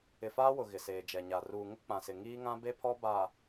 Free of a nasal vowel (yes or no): no